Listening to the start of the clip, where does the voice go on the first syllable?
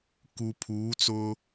low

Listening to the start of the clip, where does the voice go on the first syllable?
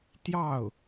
falling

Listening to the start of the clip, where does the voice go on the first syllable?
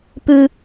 high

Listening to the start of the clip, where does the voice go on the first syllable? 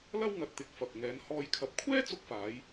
high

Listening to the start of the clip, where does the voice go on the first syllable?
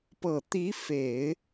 low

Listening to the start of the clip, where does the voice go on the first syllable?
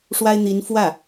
high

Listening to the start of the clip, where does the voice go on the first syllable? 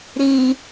low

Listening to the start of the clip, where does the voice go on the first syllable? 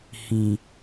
low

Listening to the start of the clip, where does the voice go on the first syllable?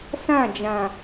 falling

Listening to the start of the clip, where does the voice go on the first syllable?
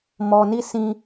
low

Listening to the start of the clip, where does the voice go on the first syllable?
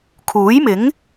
rising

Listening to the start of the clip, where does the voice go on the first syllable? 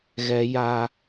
high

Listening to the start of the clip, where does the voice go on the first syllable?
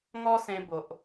high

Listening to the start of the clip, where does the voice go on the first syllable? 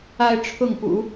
high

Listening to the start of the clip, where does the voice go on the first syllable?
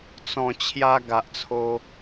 low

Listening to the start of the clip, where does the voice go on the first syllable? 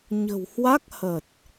low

